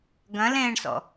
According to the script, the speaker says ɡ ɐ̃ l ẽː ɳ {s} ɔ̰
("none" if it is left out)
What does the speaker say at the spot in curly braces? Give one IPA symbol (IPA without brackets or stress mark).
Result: s